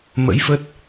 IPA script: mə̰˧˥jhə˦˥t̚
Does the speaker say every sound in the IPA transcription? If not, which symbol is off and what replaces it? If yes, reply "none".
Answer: h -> f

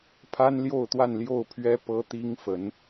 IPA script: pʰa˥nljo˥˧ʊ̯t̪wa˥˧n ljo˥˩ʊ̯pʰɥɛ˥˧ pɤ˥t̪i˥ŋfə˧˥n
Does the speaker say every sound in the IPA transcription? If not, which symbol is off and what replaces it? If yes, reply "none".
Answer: ɛ˥˧ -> ɛ˥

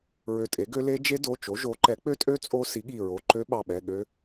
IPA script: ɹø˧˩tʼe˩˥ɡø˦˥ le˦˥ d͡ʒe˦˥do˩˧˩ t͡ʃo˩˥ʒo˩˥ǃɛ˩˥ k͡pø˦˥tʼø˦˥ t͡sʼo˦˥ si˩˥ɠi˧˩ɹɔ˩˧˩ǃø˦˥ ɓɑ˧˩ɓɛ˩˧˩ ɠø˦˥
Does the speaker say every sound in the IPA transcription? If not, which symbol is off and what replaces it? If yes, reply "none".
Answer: ɔ˩˧˩ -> o˩˧˩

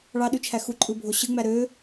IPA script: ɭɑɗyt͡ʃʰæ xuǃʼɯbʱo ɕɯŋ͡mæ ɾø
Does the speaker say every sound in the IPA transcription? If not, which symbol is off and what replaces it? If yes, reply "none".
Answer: none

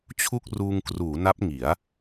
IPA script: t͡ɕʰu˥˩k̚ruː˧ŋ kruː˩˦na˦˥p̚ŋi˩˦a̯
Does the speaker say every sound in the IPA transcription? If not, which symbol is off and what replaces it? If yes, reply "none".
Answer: none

